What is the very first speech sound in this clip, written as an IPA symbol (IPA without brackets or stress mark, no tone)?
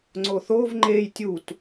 ŋ͡ǀ